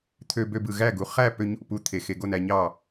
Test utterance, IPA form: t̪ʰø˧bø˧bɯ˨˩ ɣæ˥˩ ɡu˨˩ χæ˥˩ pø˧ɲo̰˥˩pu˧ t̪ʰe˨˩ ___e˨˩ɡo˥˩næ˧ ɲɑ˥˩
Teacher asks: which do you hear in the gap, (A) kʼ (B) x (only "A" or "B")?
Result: B